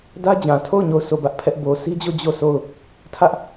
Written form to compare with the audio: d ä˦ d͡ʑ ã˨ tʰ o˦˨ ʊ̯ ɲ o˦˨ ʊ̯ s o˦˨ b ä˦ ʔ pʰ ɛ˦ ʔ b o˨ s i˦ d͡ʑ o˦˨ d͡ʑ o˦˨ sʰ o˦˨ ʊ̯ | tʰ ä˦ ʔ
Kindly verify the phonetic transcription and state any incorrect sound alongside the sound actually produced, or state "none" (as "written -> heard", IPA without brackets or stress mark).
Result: none